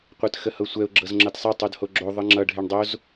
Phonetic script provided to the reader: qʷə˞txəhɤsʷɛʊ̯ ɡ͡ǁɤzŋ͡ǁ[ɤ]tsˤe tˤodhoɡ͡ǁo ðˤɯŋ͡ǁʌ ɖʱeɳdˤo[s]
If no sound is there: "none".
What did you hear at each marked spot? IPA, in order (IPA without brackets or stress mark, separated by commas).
ɤ, z